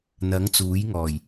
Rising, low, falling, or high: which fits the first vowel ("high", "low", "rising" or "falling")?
rising